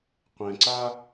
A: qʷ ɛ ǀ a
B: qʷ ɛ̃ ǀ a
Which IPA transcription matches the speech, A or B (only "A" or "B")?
B